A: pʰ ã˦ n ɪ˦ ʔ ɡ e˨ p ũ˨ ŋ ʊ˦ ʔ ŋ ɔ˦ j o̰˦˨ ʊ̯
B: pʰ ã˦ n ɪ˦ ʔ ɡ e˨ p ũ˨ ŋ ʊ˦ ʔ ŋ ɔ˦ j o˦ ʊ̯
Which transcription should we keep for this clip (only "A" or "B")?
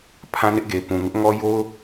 B